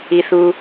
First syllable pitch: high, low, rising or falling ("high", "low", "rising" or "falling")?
low